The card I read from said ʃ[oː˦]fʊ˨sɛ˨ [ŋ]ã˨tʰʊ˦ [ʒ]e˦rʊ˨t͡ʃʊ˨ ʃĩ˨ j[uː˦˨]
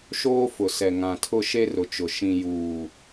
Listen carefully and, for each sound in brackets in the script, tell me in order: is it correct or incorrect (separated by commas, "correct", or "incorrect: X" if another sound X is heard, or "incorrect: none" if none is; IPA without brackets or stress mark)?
correct, correct, incorrect: ʃ, incorrect: uː˨